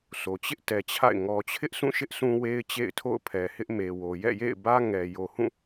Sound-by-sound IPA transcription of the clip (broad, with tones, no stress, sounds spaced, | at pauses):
s o˨ t͡ɕ ɪ˦ ʔ t ɛ˨ t͡ɕʰ a̰˦˨ ɪ̯ ŋ ɔ˨ t͡ɕʰ ɪ˦ ʔ s ũ˦˨ ʃ ɪ˦ ʔ s ũ˦ w e˦ ɪ̯ t͡ɕ ḛ˦˨ ɪ̯ tʰ o̰˦˨ ʊ̯ pʰ ɛ˨ h ɪ˦ ʔ m e˨ w o˨ j ɛ̰˦˨ j ḛ˦˨ ɪ̯ b ä˦ ŋ ɛ˨ j o˨ h ũ˦˨